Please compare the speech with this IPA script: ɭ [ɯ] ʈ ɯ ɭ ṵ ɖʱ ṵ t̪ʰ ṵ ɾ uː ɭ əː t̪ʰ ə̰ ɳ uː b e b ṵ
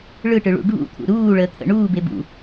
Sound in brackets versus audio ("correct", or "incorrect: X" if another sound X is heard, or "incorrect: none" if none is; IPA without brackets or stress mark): correct